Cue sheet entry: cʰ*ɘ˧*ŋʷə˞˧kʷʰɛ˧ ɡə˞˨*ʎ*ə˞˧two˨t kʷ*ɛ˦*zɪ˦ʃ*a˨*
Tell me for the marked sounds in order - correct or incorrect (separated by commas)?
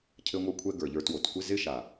correct, correct, incorrect, correct